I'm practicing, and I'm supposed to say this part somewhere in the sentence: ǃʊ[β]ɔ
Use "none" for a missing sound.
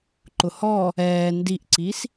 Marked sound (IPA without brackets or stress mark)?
h